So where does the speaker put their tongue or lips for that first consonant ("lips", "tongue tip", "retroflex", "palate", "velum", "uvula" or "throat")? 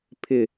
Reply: lips